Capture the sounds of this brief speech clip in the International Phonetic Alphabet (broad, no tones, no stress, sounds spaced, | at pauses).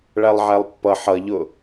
ɭ æ lˠ ʕ æ lˠ pː ʌ ħ ʌ ʎ ʊ